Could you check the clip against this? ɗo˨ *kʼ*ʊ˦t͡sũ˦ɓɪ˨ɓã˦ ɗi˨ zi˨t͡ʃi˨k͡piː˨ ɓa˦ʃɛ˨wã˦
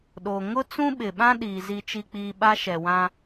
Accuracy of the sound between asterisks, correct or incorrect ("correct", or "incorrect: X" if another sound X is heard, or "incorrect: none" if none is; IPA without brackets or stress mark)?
incorrect: ŋ